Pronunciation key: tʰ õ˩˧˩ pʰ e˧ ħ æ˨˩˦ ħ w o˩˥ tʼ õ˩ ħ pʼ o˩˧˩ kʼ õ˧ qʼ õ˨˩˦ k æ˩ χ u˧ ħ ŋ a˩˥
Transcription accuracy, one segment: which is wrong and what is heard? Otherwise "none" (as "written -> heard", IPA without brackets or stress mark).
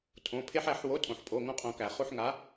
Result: kʼ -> ŋ